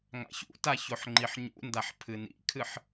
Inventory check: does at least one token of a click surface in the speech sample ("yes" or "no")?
yes